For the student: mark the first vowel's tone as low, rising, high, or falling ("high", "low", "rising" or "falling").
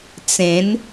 rising